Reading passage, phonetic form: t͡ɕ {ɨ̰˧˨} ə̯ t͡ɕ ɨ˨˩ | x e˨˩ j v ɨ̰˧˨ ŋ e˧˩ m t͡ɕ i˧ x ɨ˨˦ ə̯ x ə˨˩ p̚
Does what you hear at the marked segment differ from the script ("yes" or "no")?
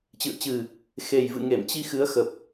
no